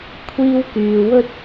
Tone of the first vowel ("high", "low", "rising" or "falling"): high